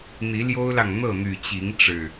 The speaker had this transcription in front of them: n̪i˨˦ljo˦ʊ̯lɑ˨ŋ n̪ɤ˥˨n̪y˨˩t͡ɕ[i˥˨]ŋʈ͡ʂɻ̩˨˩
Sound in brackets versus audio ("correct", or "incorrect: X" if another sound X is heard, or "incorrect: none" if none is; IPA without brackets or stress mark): incorrect: i˨˦